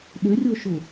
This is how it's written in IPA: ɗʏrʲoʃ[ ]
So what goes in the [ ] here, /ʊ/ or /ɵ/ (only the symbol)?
ʊ